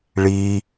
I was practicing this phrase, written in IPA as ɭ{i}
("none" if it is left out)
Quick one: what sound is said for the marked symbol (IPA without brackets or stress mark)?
i